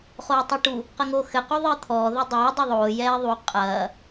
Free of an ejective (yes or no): no